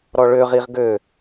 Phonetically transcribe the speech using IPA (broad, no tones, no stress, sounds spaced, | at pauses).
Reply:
ɾ ɔ ɭ ø ʁ i ʁ ɡ ø